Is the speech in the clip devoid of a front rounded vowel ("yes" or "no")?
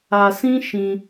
yes